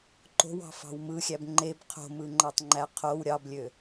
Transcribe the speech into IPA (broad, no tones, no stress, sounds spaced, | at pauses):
ǃ o̤ w ɑ̤ f ɑ̤ w m ɯ xʲ æ b ŋ͡ǃ e b qʰ o̤ m ɯ ŋ͡ǃ ɑ tˤ ŋ͡ǃ æ qʰ o w ɾʲ ɑ b lʲ ø